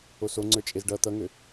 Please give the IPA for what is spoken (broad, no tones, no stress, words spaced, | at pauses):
oso ŋ͡ǀə˞t͡ʃʼezɖʌ t̪ʌŋø